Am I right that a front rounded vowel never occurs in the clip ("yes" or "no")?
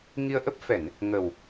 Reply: yes